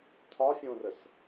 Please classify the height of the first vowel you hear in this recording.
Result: low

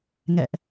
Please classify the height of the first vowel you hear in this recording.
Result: mid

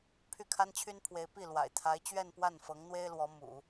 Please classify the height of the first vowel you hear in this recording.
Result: high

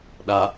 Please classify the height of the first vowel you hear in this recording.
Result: low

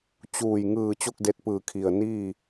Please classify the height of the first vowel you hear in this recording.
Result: high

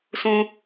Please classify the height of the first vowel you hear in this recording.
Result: high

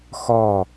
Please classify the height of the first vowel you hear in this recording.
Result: low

